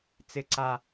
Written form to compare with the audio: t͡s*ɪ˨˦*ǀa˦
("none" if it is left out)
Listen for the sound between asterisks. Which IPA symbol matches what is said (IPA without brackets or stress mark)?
ɪ˦